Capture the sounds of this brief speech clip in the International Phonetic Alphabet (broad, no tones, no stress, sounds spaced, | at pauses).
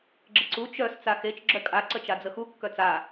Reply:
ɡ͡ǁ ə ǀ u t͡ʃ œ s t͡s a x e t͡ʃ ɡ͡ǁ œ kʼ a ǀ ə t͡ʃ a d͡z ə x u kː œ t͡s a